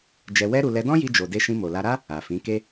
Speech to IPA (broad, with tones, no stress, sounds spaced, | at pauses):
d͡ʒ ɛ˧ w ɛ˦ ɾ u˧ l ɛ˧ d ɔ̃˦ j i˧ d͡ʒ o˨ d e˧ ʃ ĩ˧ m o˨ l a˧ ɾ a˦ | a˨ f ĩ˨˦ k e˦